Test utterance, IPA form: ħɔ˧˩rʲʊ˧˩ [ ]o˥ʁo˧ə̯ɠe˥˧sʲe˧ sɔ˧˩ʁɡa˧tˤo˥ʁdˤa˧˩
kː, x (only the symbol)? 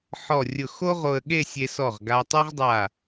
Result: x